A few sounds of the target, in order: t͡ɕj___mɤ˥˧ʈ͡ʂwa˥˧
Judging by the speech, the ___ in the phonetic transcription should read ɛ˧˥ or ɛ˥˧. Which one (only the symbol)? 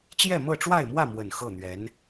ɛ˥˧